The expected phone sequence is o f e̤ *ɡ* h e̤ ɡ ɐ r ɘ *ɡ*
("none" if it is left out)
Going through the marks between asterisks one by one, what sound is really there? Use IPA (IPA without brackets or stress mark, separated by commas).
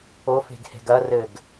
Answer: ɡ, ɡ